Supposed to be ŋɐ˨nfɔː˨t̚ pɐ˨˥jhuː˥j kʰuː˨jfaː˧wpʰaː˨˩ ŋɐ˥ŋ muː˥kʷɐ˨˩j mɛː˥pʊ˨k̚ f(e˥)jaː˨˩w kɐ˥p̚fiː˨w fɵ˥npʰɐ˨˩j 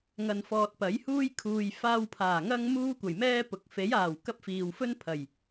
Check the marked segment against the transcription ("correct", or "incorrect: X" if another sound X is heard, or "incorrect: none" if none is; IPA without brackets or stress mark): incorrect: e˨˥